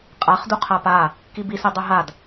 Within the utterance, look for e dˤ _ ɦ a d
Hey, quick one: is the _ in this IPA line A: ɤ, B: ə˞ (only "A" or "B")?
A